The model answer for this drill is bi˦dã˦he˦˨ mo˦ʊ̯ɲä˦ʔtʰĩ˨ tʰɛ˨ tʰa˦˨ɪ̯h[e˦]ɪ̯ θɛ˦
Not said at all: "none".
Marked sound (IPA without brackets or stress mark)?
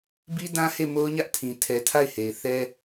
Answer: e˨